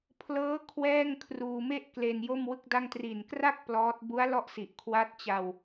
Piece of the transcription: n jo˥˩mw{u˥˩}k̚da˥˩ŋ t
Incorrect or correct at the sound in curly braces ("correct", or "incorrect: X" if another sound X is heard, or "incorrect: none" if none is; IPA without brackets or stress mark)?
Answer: incorrect: ɯ˥˩